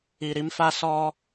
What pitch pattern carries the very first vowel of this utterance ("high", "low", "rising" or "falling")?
low